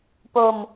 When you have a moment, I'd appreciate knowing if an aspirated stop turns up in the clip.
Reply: no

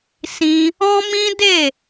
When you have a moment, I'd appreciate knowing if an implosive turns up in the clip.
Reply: no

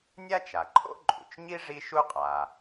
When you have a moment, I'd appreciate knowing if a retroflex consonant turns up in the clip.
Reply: yes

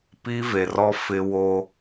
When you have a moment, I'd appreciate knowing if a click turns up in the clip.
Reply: no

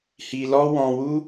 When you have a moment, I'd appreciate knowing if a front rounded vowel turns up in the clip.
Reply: no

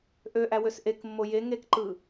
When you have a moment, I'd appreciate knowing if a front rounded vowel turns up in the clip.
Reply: yes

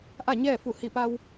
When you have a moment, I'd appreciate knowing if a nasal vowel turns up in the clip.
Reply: no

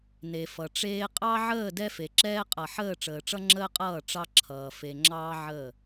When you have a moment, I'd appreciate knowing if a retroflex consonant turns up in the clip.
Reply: yes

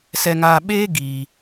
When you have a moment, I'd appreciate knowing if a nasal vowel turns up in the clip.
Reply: no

